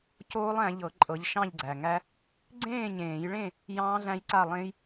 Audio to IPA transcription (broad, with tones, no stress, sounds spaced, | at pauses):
c oː˦˥ lˠ æ̃˨˦ ʎ ɤ˨˩˦ ǃʼ ɤ˨˦ ʎ ʃ ɑ̃˥˨ ʎ ɡ͡ǀ æ˨˩ ŋ æ˦˥ | ɡ͡ǀ ẽː˥˨ ɲ ẽː˨˩˦ j ɭ ẽ˥˨ | j ɑ̃ː˦˥ ɮ æ̃˦˥ j ǀ a˥˨ lˠ ẽ˦˥ j